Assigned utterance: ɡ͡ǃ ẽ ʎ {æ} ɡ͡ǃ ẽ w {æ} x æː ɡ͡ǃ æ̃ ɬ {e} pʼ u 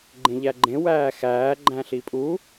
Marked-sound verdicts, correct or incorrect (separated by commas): correct, incorrect, incorrect